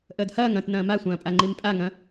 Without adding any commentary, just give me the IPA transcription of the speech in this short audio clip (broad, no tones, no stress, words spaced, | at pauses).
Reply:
ʔəːdhɐːŋ ɐ̃t nɐ̃ːmasʷɐ̃ːpʼa ŋ͡ǃimpʼaŋɐ̃